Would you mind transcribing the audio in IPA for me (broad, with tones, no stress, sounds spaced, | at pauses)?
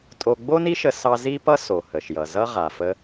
tʼ o˧ ɡ͡b o˥ n i˥ ʃ ə˧ s ɑ˥ z i˥ p ʌ˥ s o˩ h ə˩ ʃ j ʌ˩ z ʌ˥ ʁ a˩ f ə˧